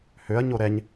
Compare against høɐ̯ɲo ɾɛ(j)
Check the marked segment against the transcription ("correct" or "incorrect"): incorrect